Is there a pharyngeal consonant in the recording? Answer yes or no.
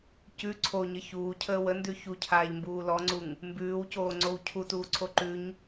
no